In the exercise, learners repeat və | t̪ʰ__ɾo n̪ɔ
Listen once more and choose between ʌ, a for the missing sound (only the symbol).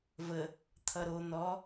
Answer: ʌ